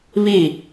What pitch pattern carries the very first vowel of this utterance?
falling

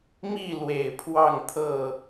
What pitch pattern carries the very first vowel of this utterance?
falling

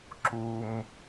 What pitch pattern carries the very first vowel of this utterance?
low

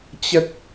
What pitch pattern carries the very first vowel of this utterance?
high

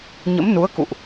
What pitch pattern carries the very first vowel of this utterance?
rising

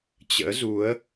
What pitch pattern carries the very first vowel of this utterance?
rising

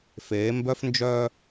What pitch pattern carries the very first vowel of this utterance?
rising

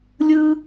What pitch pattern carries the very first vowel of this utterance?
high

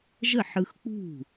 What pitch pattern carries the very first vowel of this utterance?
falling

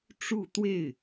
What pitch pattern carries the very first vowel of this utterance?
falling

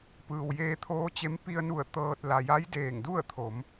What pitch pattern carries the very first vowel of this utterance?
low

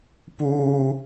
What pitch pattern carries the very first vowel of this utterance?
high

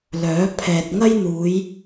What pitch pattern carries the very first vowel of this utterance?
rising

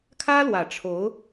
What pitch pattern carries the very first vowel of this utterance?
high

